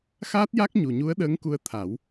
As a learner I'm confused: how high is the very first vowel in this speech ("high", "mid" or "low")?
low